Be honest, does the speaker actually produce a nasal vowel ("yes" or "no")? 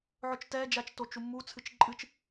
no